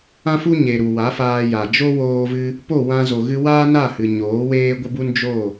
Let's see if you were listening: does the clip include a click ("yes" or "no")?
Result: no